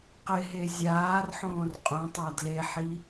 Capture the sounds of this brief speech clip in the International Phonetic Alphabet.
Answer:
q ɪ ɦ e zʲ aː r ħ õː r qʼ õ tˤ a d l e ħ i

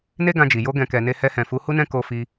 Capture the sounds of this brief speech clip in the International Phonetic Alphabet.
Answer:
n e˦ ɡ ã˧ d͡ʒ i˨ j o˧ ɡ ɛ̃˨ k ɛ˨ n e˧ h ɛ˧ h ɛ̃˨ f u˨˦ h u˦ n ɛ̃˦ k o˧ f i˧

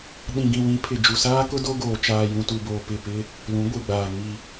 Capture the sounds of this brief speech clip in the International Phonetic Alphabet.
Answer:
ɗ ĩ˨ ɡ ĩ˨ w ĩ˨˦ pʰ ɪ˨ d͡ʒ u˨ s aː˦ k ʊ˦ d o˦ ɡ oː˨ t͡ʃ aː˨ j ũ˨ t u˨ b oː˨ p ɪ˦˨ p ɪ˦ | l ũ˨˦ ɡʷ i˨ ɡ͡b aː˨ ŋ i˨

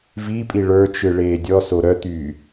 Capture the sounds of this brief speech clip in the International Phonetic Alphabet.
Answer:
v i pʼ i ɭ ə˞ t͡ʃ ɯ ɭ eː dʲ ɔ s o ɾ œ t̪ yː

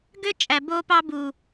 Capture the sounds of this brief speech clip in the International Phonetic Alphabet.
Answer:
ɡ ø˦ t͡ʃʼ æ˨ b o˦ p ɑ˦ b u˨

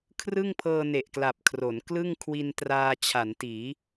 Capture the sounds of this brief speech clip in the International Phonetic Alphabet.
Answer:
kʰ r ɯ˥˩ ŋ pʰ ɤː˧ n e˨˩ ʔ k l a˨˩ p̚ kʰ r o˩˦ n k l ɯ˥˩ ŋ kʰ w i˧ n t r aː˧ t͡ɕʰ a˩˦ n t iː˩˦

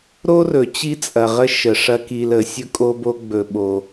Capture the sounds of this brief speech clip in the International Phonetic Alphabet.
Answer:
ɾ o˥ r ɵ˩ t͡ɕ i˥ t͡sʼ ɐ˩ ʁ ə˦ ʃ ə˩ ʂ ɐ˦ k i˨ l ə˨ sʲ ɵ˥ kʼ o˦ b o˦ ɡ͡b ɵ˨ ɓ o˨

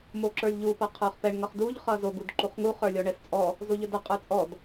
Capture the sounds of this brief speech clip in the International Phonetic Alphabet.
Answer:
m o ǁ ə˞ lʲ ʎ u p ʌ qʰ ə˞ χ p ɛ ɳ ŋ ʌ χ d u ʎ χ ʌ z o ɡ u d ǃ u χ ŋ u χ ə˞ lʲ ɔ ɳ ɛ s t͡sʼ ɔ | z o ʎ ə d ʌ qʼ ə˞ t͡sʼ ɔ d

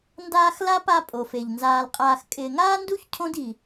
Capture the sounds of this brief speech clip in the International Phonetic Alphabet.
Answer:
n d aː˦ x l a˥ p a˦ pʼ o˩ f e˩ ʎ n z aː˨ l qʼ aː˨ x kʼ ɪː˨ ŋ aː˥ n d u˥ ç cʰ õ˥ d i˨

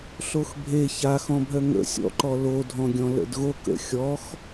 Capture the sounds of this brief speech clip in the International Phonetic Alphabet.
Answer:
ɬ o x bʱ e ç a x ɔ̃ bʱ œ ŋ ə̰ sʲ ɔ̰ ǃ ɔ l o dʱ ɔ̃ ɡʲ ɔ̃ l ə̰ d ɣ o k ə̰ xʲ ɔ x

